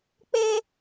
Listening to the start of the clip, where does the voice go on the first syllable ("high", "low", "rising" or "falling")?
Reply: high